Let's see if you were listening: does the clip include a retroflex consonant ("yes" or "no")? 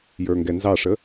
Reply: yes